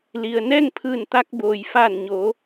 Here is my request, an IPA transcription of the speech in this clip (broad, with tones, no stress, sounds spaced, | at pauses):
l i˩ ə̯ n ɛː˥˨ ŋ pʰ ɯː˧˩ n t̪ a˧ k̚ b oː˩ j f aː˧˩ n ɲ oː˩˧